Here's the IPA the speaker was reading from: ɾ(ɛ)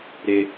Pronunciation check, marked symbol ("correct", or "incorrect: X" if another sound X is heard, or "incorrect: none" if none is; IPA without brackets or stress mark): incorrect: ɪ